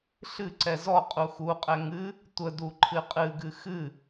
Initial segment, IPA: ɬ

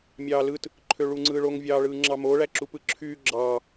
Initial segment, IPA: mʲ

